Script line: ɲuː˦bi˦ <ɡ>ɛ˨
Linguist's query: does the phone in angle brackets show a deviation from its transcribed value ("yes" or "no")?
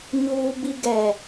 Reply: no